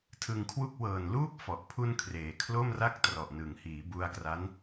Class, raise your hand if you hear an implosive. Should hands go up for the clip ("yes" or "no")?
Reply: no